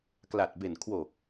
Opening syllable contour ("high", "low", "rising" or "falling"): low